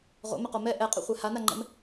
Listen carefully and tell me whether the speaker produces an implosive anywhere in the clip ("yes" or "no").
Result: no